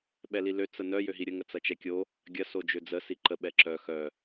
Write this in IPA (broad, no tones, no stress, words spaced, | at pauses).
ɓɛlilø t͡sənœ jøɦiɾʲə ŋət͡sɐt͡ʃɛkʲo | ɡʲɐ sod͡ʒød͡zə siǃə ɓɛǁœ xœ